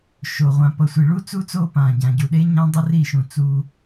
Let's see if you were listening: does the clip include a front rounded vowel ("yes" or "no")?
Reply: no